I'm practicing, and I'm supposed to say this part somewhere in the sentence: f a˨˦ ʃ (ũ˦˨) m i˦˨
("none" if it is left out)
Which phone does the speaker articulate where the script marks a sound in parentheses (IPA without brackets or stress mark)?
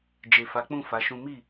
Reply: ũ˦